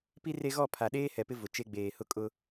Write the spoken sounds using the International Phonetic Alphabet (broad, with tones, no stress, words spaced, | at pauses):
pi˦ re˦ ɣɔ˦˨pʰa˨ ɗeː˦hɛ˨pɪ˦ vʊ˨t͡ʃe˦ ɡ͡beː˨hʊ˦kʼʊ˦